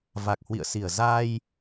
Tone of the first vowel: low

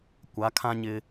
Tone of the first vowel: rising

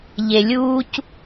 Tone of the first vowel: low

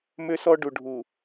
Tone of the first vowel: high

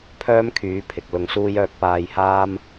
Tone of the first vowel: high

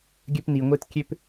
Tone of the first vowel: high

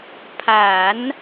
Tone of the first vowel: low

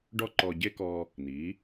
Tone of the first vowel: high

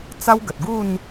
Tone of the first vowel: high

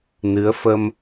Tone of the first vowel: rising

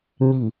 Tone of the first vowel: low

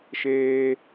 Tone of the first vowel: high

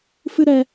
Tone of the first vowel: high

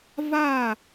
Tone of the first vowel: falling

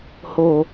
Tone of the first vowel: low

